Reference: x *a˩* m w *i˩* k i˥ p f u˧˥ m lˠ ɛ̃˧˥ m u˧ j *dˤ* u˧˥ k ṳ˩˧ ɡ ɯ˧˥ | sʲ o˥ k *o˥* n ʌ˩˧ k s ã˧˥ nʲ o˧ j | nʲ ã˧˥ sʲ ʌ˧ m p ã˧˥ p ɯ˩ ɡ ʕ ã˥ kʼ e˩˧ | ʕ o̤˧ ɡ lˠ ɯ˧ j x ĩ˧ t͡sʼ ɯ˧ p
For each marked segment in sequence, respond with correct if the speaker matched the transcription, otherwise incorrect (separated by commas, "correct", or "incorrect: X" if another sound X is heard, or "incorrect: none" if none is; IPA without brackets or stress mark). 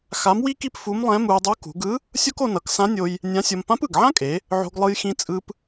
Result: incorrect: a˧˥, incorrect: i˥, correct, incorrect: o˧